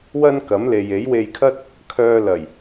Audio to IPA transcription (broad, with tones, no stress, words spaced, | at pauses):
wɐ˥nkɐ˨˥mle˨j e˨˥jwe˧jkʰɐ˥t̚ | kʰœː˧lɐ˨˩j